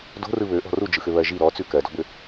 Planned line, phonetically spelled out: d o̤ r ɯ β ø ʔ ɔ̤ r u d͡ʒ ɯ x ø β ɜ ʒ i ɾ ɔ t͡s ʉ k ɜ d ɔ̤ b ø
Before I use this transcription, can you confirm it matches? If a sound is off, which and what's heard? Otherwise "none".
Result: none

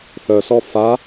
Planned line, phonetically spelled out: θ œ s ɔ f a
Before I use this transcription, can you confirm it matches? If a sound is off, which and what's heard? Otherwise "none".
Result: none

